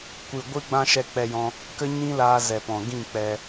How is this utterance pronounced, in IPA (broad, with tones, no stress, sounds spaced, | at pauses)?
kʷ ɨ˨ ɡʷ ɨ˦ ɡ͡b ã˦ ʃ ɛ˧ k͡p ɛ˧ j ɔ̃˧ | k ə˦ ɲ ĩ˦ l aː˧ z ɛ˨ p ɔ̃˨ ɡ ĩ˦˨ k͡p ɛ˧